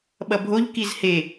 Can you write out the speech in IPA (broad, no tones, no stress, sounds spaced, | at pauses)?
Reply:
ɓ ʌ bʱ o ʎ k i z h e